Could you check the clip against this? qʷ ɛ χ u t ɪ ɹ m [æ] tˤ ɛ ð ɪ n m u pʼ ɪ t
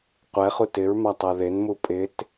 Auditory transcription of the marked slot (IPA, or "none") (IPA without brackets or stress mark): a